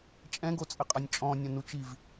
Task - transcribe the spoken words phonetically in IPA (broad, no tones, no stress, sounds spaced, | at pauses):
t͡ʃʼ ɛ̃ ɡ o t͡sʼ ɘ qʼ ɐ nʲ t͡ʃʼ ɔ̃ nʲ ɐ̃ n u t͡ʃ i v